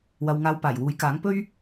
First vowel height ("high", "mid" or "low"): low